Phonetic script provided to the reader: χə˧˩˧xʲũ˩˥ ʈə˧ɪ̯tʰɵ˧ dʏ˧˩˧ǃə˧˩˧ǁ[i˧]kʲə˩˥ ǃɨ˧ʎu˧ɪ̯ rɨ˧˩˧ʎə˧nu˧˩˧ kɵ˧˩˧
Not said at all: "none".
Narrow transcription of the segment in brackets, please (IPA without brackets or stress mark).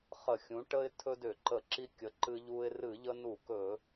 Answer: i˧